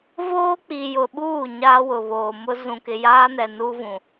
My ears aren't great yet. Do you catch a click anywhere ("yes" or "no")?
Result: no